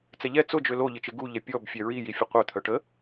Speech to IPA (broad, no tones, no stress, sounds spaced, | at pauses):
t͡s ɛ ʎ ɛ t͡s ʊ d͡ʒ ø l o ʎ ɪ t͡ʃ ɪ ɡ u ʎ ɛ pʲ ɔ b fʲ ɛ ɹ i j i fʲ ʊ qʷ œ t̪ʰ œ ʈ ə